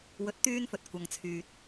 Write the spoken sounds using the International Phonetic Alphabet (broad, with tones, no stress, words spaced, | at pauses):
wɵ˨˥t̚t̪yː˧nfɵ˨t̚ kʷɐ˨ŋt͡sʰyː˨t̚